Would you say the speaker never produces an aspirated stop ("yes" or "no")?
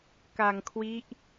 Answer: no